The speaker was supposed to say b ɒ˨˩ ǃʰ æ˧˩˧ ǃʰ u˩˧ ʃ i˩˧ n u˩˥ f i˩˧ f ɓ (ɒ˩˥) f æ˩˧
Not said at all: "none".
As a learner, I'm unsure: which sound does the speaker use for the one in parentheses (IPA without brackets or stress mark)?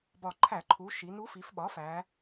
ɒ˩˥